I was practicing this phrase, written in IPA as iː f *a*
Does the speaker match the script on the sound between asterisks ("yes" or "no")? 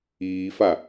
yes